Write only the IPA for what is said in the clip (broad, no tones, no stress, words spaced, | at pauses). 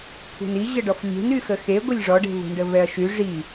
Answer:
kʷʰe̤ni ʑəɖɔflʲe̤n yxəxe ɡʷəlʲʐɔɖe̤ vṳɳɖəvɛɐ̯ʃy ʐi